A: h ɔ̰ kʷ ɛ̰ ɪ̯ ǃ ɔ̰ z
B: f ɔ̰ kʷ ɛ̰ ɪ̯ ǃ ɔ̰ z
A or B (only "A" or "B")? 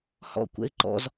A